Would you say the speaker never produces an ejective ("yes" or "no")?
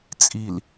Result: no